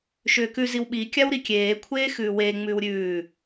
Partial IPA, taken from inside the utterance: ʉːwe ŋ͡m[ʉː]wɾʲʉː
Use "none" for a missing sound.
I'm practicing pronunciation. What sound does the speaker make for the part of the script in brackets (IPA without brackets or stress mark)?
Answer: ʉː